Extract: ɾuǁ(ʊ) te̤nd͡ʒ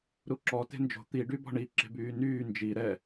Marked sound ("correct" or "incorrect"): incorrect